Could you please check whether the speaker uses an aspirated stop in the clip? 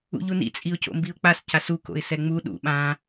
no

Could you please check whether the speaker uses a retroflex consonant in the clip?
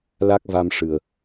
yes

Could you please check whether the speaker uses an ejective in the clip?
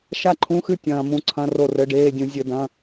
no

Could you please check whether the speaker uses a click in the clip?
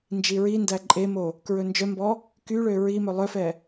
yes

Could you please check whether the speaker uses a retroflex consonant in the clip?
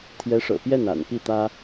yes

